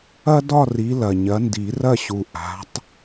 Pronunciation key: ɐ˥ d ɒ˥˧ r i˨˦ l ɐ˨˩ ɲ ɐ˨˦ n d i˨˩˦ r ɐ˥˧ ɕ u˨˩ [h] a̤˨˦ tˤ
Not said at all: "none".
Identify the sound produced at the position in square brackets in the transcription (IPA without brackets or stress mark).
ʔ